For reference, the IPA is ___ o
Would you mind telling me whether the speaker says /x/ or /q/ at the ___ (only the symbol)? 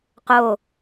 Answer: q